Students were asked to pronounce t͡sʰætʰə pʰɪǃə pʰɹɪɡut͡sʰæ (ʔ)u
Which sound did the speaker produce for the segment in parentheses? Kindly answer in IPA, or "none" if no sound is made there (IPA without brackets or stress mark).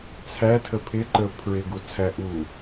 ʔ